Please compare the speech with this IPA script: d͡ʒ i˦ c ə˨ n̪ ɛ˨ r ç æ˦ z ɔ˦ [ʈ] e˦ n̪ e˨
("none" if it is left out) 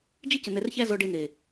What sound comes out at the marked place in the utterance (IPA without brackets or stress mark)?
ɖ